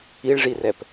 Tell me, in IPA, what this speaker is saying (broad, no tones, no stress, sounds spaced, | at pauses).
i ɭ ʐ i r ɛ p